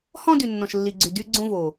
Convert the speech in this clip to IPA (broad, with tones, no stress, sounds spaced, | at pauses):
h ɔ̃˦ d y˨ nː ɔ̃˨ ʃ lː i˨ ɡ͡ǀ y˨ d y˦ ɡ͡ǀ õ˦ v o˨